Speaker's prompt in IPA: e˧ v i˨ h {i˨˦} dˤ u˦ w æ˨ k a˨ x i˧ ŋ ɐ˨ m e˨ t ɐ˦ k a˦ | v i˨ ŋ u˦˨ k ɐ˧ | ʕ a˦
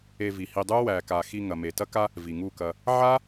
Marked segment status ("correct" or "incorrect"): incorrect